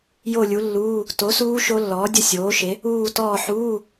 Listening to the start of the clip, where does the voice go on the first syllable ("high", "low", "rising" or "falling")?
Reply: falling